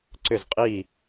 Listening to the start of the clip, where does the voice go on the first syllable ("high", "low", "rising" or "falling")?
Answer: falling